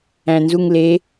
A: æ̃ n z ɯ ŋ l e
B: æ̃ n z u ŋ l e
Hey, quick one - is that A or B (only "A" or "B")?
B